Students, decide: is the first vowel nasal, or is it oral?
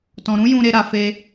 nasal